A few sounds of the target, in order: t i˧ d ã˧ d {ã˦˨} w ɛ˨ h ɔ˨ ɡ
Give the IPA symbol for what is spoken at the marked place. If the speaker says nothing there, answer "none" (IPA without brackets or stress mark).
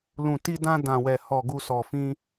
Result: ã˨